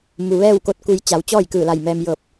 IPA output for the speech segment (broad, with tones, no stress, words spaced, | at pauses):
mu˩ʋɛː˥˨wko˧˥t̚ku˧j t͡ɕa˩˧wt͡ɕɔː˥˨jkɯː˧˩la˧˩j mɛː˧m jɤː˧˩p̚